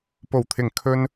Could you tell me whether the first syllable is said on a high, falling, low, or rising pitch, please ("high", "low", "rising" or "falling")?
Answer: low